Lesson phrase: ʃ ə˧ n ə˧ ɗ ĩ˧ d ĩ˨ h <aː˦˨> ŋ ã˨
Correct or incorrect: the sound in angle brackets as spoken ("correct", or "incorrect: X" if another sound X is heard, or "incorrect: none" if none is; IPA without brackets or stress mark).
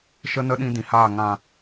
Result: correct